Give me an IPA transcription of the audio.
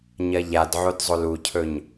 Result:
ɲ ɐ ʎ a d ʕ o d zˤ o l u cʰ ɵ ɲ

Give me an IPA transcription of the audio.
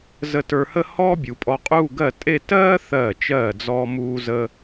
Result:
z ə˧ t ə˞˧ h ə˥˧ h ɔː˥ bʲ u˩˧ pʼ ɔ˧ qʼ u˥˧ ɡ ɜ˥˧ tʼ e˥˧ t ɜː˥ θ ɜː˧˩ t͡ʃ ɜː˧˩ d͡z ɔ˧ m uː˥ z ə˥

